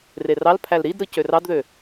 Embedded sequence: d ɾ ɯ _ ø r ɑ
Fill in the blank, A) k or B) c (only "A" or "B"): B